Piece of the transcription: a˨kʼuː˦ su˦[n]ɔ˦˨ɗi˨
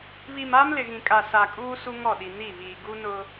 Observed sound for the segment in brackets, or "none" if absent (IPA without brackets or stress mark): ŋ